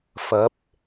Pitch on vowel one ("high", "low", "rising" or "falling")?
rising